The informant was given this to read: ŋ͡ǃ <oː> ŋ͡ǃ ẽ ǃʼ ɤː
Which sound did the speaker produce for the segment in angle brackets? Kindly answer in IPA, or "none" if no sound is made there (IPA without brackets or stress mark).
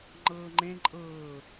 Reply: ɤː